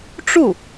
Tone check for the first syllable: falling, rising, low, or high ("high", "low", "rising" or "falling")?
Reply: falling